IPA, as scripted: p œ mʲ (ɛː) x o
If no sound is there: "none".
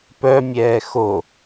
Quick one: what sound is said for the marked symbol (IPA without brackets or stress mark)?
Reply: ɛː